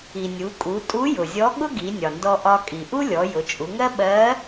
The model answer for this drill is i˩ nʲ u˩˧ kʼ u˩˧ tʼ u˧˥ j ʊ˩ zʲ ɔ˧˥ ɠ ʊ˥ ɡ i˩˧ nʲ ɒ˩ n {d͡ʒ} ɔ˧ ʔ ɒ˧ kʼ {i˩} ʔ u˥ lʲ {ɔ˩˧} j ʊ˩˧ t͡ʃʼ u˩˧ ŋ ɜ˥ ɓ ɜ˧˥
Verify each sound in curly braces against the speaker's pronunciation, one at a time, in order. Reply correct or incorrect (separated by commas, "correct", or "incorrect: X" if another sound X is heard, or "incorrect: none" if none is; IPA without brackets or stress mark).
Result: incorrect: d, correct, correct